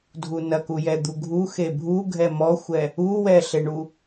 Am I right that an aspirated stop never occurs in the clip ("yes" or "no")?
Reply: yes